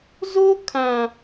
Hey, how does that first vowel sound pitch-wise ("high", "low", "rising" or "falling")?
high